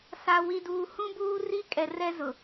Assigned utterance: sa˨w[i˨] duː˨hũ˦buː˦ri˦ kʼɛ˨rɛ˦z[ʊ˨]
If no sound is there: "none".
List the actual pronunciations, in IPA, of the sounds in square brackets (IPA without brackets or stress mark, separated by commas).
i˨, ʊ˨